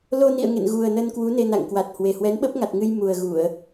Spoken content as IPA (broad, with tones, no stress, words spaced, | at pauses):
lo˧nḭ˧˨ə̯ ŋḛ˧˨nɣu˨˩ə̯nə˧nkwu˨˦ ne˧na̰˧˨ŋkwa˨˩t̚hwe˨˩ hwɛ˨˦nɓə˦˥p̚ŋa˨˩t̚ŋɨ˧j mu˨˩ə̯ɣu˧˩˨ə̯